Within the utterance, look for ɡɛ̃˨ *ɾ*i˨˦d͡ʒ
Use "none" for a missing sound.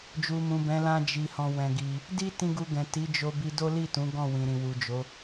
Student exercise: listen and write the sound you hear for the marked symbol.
t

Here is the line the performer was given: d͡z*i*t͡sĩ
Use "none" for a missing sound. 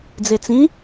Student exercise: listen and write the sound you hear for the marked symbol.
e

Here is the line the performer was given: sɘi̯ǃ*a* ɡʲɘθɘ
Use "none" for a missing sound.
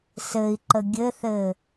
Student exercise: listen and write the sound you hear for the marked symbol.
ə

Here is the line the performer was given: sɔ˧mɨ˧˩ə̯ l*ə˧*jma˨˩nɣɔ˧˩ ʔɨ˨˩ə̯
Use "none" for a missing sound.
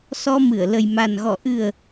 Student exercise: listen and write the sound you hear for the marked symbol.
ə˨˩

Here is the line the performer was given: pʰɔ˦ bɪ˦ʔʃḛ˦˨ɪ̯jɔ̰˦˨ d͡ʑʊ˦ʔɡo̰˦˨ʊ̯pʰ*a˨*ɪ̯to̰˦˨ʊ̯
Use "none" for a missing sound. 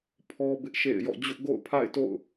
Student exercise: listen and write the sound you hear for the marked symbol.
a̰˦˨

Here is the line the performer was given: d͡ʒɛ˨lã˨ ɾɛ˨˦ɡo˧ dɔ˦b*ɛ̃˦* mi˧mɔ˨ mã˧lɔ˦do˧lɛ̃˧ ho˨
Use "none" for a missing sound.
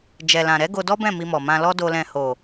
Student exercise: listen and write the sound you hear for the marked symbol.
ɛ̃˦˨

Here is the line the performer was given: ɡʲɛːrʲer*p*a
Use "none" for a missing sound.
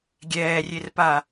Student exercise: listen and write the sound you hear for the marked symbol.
p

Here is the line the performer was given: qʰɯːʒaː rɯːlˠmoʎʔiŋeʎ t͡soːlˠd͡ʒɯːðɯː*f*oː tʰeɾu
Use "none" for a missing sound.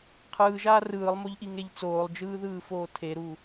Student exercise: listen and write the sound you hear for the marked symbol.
f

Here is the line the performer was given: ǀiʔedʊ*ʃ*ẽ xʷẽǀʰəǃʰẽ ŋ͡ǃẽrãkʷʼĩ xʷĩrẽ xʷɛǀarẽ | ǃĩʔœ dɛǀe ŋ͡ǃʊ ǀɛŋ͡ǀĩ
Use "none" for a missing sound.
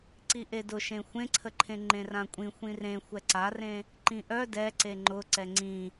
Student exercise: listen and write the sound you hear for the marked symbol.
ʃ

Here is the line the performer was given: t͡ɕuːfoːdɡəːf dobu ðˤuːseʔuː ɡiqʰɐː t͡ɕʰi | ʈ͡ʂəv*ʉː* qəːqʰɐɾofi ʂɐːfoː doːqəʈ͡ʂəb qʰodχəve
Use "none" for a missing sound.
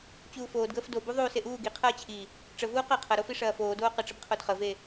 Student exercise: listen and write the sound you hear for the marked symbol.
uː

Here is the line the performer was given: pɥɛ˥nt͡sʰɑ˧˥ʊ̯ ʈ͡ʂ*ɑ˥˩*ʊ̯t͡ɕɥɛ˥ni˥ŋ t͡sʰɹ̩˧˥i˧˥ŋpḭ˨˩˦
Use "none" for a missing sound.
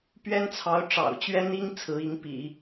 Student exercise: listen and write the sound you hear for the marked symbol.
ɑ̰˨˩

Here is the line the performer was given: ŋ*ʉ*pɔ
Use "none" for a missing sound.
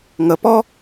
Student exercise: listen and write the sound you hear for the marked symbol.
ə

